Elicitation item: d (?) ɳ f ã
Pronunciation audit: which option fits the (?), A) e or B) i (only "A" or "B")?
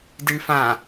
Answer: B